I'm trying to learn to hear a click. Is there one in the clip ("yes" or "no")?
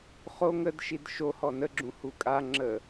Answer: yes